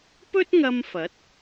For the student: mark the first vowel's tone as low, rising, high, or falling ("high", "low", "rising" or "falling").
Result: high